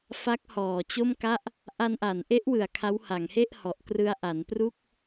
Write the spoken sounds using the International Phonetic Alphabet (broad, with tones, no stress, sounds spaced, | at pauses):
f a˦˥ k̚ h ɔː˨˩ t͡ɕ o˥˩ m k a˥˩ ʔ | ʔ a˧ n ʔ a˩˦ n ʔ e˦˥ ʔ w ɯ˨˩ a̯ kʰ a˦˥ w h a˩˦ ŋ h e˥˩ ʔ h ɔ˨˩ ʔ k r ɯ˧ a̯ ʔ a˩˦ n p r u˥˩ k̚